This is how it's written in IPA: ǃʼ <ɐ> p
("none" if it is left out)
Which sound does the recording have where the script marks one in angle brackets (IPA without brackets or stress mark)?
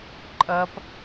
ɐ